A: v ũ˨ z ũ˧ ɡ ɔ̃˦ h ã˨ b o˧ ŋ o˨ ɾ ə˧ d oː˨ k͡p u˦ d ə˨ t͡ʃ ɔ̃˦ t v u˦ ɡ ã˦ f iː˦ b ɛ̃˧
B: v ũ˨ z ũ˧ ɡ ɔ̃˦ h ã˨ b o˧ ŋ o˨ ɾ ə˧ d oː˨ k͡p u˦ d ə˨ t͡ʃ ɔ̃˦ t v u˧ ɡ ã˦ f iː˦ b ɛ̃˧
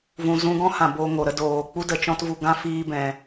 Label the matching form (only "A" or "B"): B